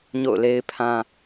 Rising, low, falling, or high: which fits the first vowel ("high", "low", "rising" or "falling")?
falling